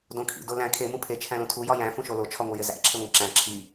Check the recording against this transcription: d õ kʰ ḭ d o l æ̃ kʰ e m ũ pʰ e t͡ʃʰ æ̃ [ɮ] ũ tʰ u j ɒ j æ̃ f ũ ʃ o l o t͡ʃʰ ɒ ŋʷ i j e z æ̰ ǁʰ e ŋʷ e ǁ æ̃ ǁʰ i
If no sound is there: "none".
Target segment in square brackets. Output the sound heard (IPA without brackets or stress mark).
l